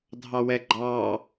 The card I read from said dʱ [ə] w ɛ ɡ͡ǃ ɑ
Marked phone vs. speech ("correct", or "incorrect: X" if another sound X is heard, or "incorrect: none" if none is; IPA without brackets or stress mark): incorrect: ɑ